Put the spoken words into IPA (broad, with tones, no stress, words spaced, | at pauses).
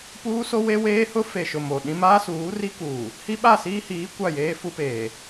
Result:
puː˦ so˦we˦ weː˦hʊ˦ fe˨ʃʊ˨ mo˨ɗĩ˦ maː˦suː˨˦ri˦kuː˨ | hi˦ɓa˦˨siː˦hiː˨˦ kʷa˦˨jeː˦fu˦peː˨